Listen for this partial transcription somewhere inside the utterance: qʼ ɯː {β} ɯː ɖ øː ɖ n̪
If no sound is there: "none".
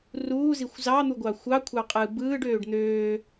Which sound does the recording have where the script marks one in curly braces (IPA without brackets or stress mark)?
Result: b